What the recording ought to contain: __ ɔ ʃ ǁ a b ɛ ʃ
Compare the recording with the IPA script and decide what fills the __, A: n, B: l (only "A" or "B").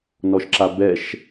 A